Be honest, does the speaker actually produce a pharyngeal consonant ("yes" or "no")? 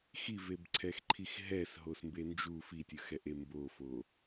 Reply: no